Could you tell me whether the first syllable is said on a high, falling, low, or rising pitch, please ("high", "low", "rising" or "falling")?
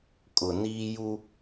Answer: low